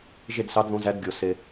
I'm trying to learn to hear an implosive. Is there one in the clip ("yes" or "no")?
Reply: no